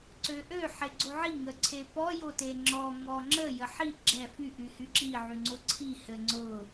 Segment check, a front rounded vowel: present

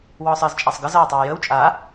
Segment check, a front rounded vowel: absent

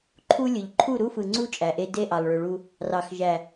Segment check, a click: present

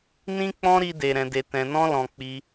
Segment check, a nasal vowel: present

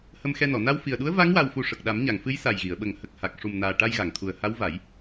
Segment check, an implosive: present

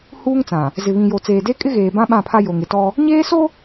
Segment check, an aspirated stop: present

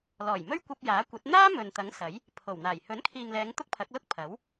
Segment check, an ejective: absent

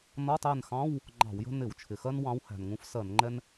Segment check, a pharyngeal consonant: absent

